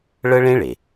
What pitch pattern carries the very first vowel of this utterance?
high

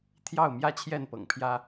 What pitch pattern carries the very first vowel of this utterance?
falling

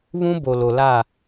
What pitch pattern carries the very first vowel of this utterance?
high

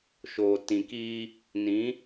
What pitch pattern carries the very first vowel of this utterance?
low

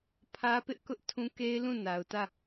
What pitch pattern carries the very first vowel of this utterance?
high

